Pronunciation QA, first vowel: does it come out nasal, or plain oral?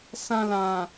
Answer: nasal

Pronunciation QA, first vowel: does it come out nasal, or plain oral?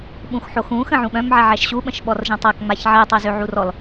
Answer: nasal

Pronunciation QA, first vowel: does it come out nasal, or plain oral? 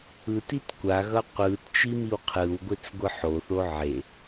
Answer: oral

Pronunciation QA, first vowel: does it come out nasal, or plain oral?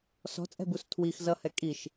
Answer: oral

